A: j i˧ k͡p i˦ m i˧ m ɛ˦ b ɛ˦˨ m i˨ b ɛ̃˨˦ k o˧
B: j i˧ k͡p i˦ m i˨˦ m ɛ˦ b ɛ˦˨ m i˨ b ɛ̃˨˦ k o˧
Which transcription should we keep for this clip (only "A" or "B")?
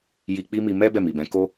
A